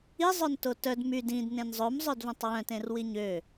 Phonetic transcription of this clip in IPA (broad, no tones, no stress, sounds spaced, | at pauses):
i zˤ œ n t o t œ d m y d ĩ d n ẽ n zˤ ɵ m zˤ œ d v œ̃ tˤ w œ̃ t ẽ r w i ɲ ø